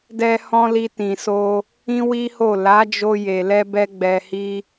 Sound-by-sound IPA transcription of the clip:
dɛ˧hɔ̃˧ li˧tĩ˨so˧ | ĩ˦wi˦ho˦˨ la˨˦d͡ʒo˧ je˨lɛ˧bɛ˧ ɡ͡bɛ˧hi˦

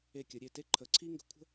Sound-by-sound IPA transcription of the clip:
e˧˩kʲə˩˧ɾʲe˧˩te˥ ǃʰə˩˧ ǀʰi˥ŋɡə̤˧kʷʰə̤˥

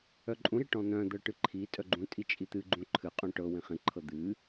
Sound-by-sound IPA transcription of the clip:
œǃʼũɾi ʈɔ̃n̪œ̃d̪ɤ ʈɨǃʰitʼœ ɡ͡ǃũtʼi t͡ʃʼit̪ɨɡ͡ǃũ ǃʰɨqʼũ ʈɤ wĩχĩǃʰɤ d̪ɨ

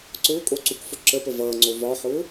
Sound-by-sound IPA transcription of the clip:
ǀʊːkʼoǀukfʊ ǁəpə vʌːŋ͡ǀo vɒħʊː

